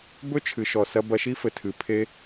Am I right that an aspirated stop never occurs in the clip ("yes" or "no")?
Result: no